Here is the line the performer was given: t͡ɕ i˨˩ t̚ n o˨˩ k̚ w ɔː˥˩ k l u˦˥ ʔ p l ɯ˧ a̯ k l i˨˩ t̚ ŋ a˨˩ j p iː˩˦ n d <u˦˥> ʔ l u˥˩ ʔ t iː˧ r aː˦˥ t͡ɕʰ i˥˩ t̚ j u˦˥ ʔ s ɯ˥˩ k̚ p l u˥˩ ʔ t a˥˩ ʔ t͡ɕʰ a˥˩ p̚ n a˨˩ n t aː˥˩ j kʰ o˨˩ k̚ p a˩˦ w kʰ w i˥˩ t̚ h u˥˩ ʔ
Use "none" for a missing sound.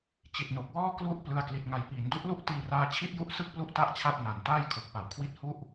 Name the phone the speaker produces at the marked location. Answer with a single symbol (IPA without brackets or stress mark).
u˦˥